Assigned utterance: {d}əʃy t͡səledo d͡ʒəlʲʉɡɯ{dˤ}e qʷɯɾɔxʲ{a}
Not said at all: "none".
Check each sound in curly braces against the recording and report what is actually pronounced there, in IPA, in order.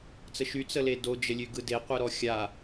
t͡s, d, a

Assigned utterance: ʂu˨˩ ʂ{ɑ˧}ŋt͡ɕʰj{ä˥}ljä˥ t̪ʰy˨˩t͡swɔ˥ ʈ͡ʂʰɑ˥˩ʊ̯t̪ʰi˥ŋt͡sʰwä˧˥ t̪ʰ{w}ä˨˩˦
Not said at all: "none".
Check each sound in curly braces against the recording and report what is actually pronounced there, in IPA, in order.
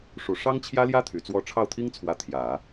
ɑ˥, ä˥, j

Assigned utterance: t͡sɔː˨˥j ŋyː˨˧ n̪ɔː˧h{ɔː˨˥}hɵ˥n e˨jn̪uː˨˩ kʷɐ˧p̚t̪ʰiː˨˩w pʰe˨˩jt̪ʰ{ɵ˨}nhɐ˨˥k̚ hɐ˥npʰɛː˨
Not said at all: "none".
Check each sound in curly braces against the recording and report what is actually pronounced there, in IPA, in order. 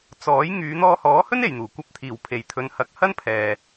ɔː˨˥, ɵ˨˧

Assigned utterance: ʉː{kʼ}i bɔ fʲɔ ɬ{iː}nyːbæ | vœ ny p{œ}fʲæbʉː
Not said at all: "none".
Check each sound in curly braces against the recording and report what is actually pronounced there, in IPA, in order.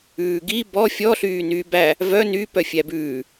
ɡ, yː, œ

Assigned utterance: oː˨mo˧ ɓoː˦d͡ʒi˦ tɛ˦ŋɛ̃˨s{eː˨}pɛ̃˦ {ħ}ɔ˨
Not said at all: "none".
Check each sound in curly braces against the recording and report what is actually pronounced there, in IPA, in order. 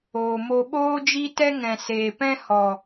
eː˨, h

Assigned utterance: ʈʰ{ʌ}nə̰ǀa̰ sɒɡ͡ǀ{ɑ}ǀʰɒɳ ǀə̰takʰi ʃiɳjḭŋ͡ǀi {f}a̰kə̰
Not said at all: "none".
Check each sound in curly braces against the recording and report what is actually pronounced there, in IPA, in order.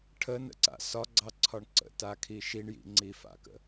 ə, ɑ, f

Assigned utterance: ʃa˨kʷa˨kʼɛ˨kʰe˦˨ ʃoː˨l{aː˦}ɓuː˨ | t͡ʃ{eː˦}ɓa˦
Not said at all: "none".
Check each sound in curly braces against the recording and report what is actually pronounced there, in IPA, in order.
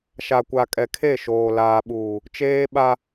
aː˨, eː˦

